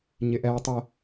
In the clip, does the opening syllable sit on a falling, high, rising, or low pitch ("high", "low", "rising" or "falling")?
low